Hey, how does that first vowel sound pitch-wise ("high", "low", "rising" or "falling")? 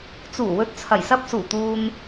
low